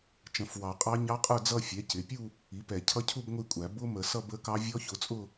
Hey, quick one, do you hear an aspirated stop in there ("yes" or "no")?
yes